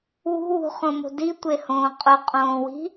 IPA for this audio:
wṳwṳχõmo̤ ditʷehõː qʼʊqʼõːwi̤

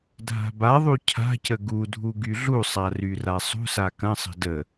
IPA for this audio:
dʱa̤baðˤu cʰa̤cə ɡudʱu ɡyɮusˤa ryrasˤṳsa kɐ̃sˤə̤ də

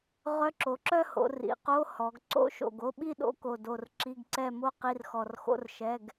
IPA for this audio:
ʁœ˧˥˧ǁo˩˧ǁœ˥˧ho̰˩˧ rḭ˩˧qo˧˥˧ hɔ˩˧ɡǀo̰˧˥˧ʃo̰˧˩ɡo˧˥˧ ɓi˥˧ɗo̰˧˥˧ ko˧˩do˧˩r ǁi˧˥˧ɡǀɛ˥˧mo˥ qi˧˥˧rxɔ˧˩rxo̰˥r ʃɛ˧˥˧ɡ

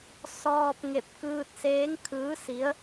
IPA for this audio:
sɔː˧p̚ŋe˧˩p̚ kɯː˧t̚seː˧˥ŋ kʰɯː˧˥si˧˥ə̯

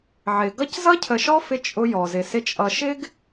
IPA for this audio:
ʕɪ˨ ɡʌ˦c zʌ˦cʰə˨ʃɔ˦ fɪ˦ t͡ʃʼʊ˦jɔ˨zɪ˨sɪ˦ t͡ʃʼʌ˨ʃɪ˦ɡ

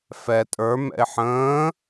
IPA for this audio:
fɛ tʼə˞ mɛ̰ɪ̯ħə̃ː

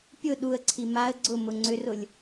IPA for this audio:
pʲʊ ɗuə̯ǀʰi maə̯ ɡ͡ǀʊ mʊŋ͡ǀʏrʊlʲ

